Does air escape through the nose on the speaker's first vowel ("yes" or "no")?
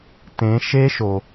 yes